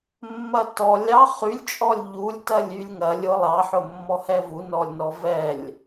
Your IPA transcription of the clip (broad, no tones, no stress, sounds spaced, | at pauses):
mː ɐ t ɔ lʲ ɑ χ y lʲ t͡ʃʼ ɔ lʲ ʎ u lʲ t ɐ lʲ y lʲ ŋ ɐ lʲ ʊ lˠ ɑ ħ ʊ mː ɔ h ɛ v u n ɔ lʲ n ɔ v ɛ lʲ